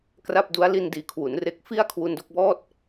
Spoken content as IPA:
kra˥˩p̚du˦˥a̯ li˧ndiː˨˩ kʰwu˩˦n re˨˩k̚fi˦˥a̯ kʰwu˧ndo˥˩k̚bɔː˥˩t̚

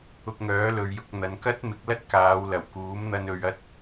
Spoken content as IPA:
ʊ˧k̚ŋœː˨˥ lɵ˨ɥjʊ˧k̚n̪ɐ˨˧n kɐ˥t̚mɪ˨˥k̚lɐ˥t̚ kaː˨˧w lɐ˨˩wkuː˨˥mn̪ɐ˧n ɵ˧ɥ ɐ˥t̚

